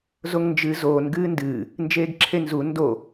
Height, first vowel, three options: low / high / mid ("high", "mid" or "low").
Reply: mid